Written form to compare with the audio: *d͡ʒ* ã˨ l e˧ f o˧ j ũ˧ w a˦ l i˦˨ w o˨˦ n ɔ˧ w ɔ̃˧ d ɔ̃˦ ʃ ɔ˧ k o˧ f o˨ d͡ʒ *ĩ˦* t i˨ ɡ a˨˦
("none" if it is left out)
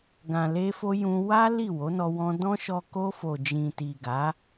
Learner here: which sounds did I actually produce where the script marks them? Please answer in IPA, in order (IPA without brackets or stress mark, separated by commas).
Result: ɡ, ĩ˨